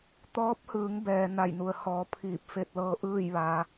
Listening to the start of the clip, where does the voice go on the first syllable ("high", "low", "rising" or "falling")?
rising